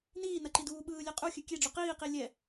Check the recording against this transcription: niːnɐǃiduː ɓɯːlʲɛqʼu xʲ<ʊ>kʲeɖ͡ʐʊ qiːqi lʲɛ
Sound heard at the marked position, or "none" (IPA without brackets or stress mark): ʉ